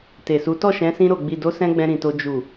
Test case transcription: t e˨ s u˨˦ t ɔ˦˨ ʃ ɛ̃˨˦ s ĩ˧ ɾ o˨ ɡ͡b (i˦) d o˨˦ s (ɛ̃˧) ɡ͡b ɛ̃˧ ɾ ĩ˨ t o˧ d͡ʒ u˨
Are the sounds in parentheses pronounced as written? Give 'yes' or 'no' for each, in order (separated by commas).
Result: no, yes